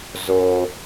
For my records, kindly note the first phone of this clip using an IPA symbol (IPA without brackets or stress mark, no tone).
z